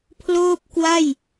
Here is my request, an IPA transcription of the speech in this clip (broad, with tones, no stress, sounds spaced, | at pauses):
pʰ l oː˥˩ p̚ k w a˥˩ j